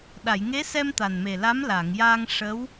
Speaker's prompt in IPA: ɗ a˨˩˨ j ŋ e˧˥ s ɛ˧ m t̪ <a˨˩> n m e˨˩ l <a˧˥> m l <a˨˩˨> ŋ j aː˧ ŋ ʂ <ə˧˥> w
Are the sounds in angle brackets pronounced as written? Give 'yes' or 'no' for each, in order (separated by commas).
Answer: yes, yes, yes, yes